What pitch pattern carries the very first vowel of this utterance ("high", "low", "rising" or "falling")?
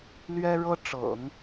high